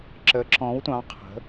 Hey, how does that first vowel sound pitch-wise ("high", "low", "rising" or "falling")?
rising